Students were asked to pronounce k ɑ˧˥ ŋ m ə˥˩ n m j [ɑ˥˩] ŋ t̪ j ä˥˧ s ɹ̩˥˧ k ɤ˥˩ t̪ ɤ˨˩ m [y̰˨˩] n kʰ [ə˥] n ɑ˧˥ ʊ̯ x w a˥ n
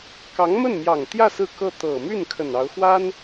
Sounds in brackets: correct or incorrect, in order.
incorrect: ɑ˨˩, incorrect: y˥˩, incorrect: ə˨˩

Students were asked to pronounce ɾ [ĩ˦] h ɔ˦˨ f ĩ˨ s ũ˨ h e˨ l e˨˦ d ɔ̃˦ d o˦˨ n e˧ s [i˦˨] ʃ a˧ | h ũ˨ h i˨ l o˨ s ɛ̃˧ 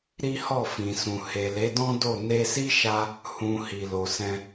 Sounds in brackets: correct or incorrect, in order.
incorrect: i˦, incorrect: i˦

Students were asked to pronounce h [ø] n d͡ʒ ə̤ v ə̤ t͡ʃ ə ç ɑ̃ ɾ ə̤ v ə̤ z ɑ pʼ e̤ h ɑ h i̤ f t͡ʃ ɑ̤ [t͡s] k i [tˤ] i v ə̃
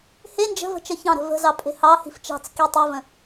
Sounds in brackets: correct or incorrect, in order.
incorrect: e, correct, correct

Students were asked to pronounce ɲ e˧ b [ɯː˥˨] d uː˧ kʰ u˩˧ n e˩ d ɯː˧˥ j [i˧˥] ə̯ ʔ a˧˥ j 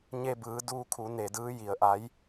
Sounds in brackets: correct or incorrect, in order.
incorrect: ɯː˩˧, incorrect: i˩

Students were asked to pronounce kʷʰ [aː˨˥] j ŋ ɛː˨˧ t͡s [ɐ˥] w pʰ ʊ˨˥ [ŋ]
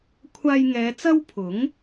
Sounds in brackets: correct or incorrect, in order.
incorrect: aː˧, correct, correct

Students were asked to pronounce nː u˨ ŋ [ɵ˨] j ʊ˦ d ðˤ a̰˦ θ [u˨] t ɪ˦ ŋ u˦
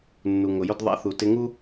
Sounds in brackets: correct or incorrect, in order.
incorrect: ʊ˨, correct

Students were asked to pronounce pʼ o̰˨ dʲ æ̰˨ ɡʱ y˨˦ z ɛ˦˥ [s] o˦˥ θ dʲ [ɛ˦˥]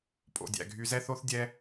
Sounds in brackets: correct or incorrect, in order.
incorrect: θ, correct

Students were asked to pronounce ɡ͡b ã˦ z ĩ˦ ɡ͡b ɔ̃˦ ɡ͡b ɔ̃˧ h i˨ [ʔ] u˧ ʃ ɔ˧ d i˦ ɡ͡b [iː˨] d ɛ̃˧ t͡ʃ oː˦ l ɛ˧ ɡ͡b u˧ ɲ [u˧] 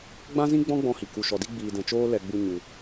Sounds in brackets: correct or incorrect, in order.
incorrect: k, incorrect: iː˧, correct

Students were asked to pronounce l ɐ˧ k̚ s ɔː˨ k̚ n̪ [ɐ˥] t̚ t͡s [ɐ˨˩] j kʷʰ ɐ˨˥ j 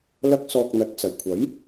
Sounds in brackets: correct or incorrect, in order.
incorrect: ɐ˨˥, correct

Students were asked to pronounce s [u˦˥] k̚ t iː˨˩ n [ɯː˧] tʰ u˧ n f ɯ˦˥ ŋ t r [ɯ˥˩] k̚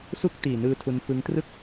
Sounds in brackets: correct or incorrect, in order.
correct, incorrect: ɯː˦˥, correct

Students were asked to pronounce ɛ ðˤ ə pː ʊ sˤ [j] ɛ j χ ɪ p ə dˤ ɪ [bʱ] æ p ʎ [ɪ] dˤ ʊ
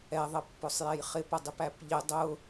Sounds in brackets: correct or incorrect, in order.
correct, incorrect: p, correct

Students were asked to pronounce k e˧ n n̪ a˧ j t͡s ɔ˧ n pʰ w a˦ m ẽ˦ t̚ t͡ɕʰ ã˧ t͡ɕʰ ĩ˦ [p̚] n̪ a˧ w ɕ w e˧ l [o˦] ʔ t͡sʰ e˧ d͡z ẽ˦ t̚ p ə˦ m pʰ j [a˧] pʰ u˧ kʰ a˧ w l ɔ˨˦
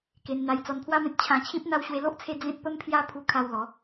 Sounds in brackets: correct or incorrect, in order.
correct, correct, incorrect: a˦

